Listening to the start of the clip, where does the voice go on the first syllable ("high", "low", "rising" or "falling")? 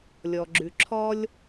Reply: low